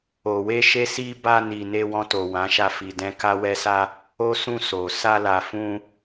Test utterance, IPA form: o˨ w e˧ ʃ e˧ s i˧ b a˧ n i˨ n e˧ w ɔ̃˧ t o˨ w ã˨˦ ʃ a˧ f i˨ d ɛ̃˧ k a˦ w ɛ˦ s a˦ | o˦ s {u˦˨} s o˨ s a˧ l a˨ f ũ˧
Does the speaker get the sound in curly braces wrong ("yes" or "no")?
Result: yes